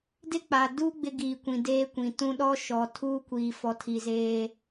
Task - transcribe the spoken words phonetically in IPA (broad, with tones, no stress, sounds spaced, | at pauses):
d ɪ˦ k͡p a˨ d u˦ ɡ͡b ɪ˦ ɡ iː˨ kʷ ĩ˨ d eː˦ kʷ ĩ˨ t ũ˦ ɗ ɔ˦ ʃ ɔ˨ tʰ uː˦ kʷ iː˨ f ɔ˨ tʰ i˨ z eː˦